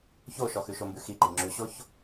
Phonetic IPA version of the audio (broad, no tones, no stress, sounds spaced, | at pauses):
ç o ʃ ɔ x ʉ ʃ o m b ʉ x i ǃ i ŋ͡ǁ ʉ ɕ o ç